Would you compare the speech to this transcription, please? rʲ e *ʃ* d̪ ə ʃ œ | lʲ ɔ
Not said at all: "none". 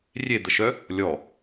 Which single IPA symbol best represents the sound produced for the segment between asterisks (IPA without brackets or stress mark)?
none